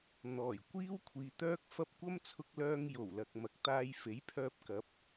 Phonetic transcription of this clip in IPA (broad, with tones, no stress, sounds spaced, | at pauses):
n̪ ɔː˨˩ j kʷ iː˥ w kʷʰ iː˨ t̪ œː˥ k̚ f ɐ˧ p̚ kʷ ɐ˥ m t͡sʰ ʊ˧ k̚ l œː˧ ŋ j o˨˩ w l ɐ˨ k̚ m ɐ˨˥ k̚ t̪ aː˧ j f e˨˥ j pʰ œː˧ p̚ k ɐ˨˥ p̚